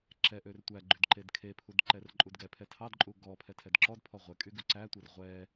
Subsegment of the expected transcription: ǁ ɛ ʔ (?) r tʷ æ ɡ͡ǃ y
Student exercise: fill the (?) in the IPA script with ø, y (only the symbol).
ø